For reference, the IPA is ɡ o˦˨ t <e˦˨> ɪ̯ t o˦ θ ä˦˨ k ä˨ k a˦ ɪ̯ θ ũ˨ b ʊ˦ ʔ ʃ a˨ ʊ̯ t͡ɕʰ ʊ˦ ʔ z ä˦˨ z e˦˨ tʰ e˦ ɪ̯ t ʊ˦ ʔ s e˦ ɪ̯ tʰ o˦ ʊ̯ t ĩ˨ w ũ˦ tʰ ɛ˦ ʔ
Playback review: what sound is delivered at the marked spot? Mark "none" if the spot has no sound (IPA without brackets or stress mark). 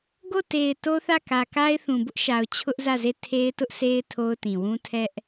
e˨